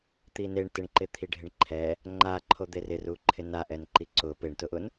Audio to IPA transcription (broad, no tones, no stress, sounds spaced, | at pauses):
t̪ i n e ɳ t ɪ ɳ ǃ ɪ t̪ʰ i ɖʱ ɪ ɳ ǃʰ ɛ | ŋ͡ǃ a ǃʰ o d̪ e r ɪ r u ǃʰ ɪ n a ʔ ɛ n ǃ i ǀ ʊ p e ɳ t ʊ ʔ ʊ n